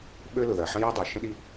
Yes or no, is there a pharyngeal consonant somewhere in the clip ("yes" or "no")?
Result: yes